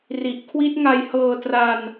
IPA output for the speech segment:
ri˨˩ʔkʰwi˦˥t̚ŋa˧jhɤː˧ tra˧n

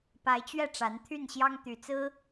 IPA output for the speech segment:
pa˧˥ɪ̯t͡ɕɥɛ˥˩ ʈ͡ʂa˧˥nt̪ʰy˥˩nɕjɑ˥ŋ t̪y˨˩t͡sɹ̩˥

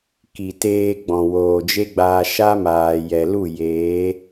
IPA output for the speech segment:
ki˨ teː˧ɡ͡bɔ̃˨ woː˨d͡ʒe˦ɡ͡baː˧ ʃa˦maː˨ jɛ˨lu˦˨ jeː˨˦

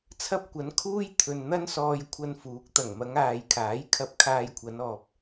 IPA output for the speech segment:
t͡sʰɐ˥p̚kʷɐ˨˥nkʰuː˥j t̪ʰɵ˨n n̪ɐ˥nsɔː˧jkʷʰɐ˧nfuː˨˥k̚ t̪ɐ˨˩ŋmɐ˨˧ŋaː˨jkʰaː˨˥j kʰɐ˧p̚kʰaː˧jkʷʰɐ˨˧n ɔː˨p̚

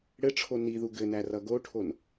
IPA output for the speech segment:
ɽɘʈ͡ʂʰo niðu ɡɘnæ rʌɡoʈʰon

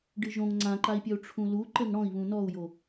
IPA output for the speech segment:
ɖɨʒõŋ ŋ͡ǀãǃai̯pʲɐu̯ ʈ͡ʂʰũlu ǃɘŋɽɔ̃i̯βũ nɔu̯jo

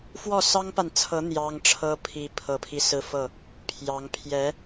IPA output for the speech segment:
fwɔ˥˩sɑ˥ŋpa˨nt͡sʰɤ˧˥ n̪jɑ˥ŋʈ͡ʂʰɤ˥ pʰi˧˥pʰɤ˨˩pʰi˦ sɹ̩˥˧fɤ˥˩ | pʰjɑ˧˥ŋ pʰjɛ˧˥

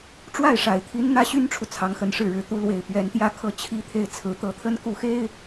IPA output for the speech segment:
ʈ͡ʂwa˥˩ɪ̯ʂa˨˩ɪ̯t̪ʰi˧˥n n̪ä˥ɕy˥nʈ͡ʂʰu˨ t͡sʰɑ˧˥ŋxə˧˥nʂɻ̩˥˩ɻɻ̩˧˥ t̪u˧˥lwe˨˩ɪ̯ pɥɛ˧˥nt̪jä˥˧ kʰɤ˥˩t͡ɕʰi˥t̪ʰe˥˩ɪ̯ t͡sʰɹ̩˧˥t̪ɤ˧˥t̪ʰə˥n ku˥˩xe˥ɪ̯

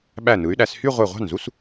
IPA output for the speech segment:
ɓæ˧˩nɯ˩˧y̯ɗæ˩˧s hy˥˧ʁʷe˧˩ʁʷɑ̤˥˩nzu˥s

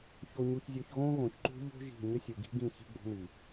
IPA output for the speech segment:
ço˨ɲu˨çzʲo˨ç ɣõ˦ɣõ˨çǃṳ˦ ʎo̤˦ ʒi̤˦˨ ɲə˦sʲu˨ɡi̤˦ɡĩ˦˨ çi̤˦ɡ͡bo̤˦ni˨

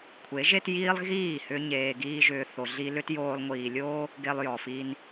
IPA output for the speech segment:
kʷʰe˨˦ʒe˦tjiː˦lˠ ɣiː˦˨hʏ˧ ɲeː˧ɡiː˦ʒʏː˧ θo˨ɮi˧lʏ˦t joː˧lˠŋʷiː˨lʲo˦ | ɡe˧lˠjɔ˨fi˧n

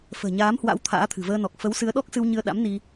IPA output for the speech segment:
fə̤ː˨˩ɲaː˨˦mhwa̰˧˥w t̪ʰa̰ː˧˥t̪ʰɨ̤˨˩vəː˧nɔ˨˩k̚ fə˨˦wsɨ˨˦ə̯ɗɔ˦˥k̚ sɨ˧wɲɨ˧ə̯ɗa̰˧˥m ni˧

